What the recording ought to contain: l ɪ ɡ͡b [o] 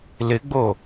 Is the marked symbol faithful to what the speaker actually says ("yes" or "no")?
yes